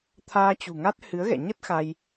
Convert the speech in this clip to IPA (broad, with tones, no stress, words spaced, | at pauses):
t̪ʰaː˧t͡ɕṳ˨˩ŋa˦˥t̚ hɨ˨˦ə̯ɣɛ̰˧˨ɲə˦˥t̚ xa˧j